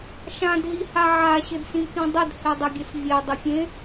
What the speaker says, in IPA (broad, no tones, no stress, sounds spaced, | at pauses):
ʃ ã d ɦ i h a ʕ a ɕ ɘ d s ĩ k ĩ dˤ ə d h e dˤ ə ɡʲ ɘ s vʲ e dˤ ə fʲ ẽ